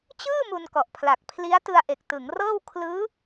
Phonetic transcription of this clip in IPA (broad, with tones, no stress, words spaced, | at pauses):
t͡ɕɯː˥˩ mu˧nkɔ˨˩ʔpʰla˨˩k̚ pʰli˦˥a̯ tɯ˧a̯ʔe˨˩k̚tɯ˩˦ŋrɤː˥˩w kʰlɯː˦˥